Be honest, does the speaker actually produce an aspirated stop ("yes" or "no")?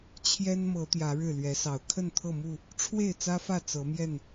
yes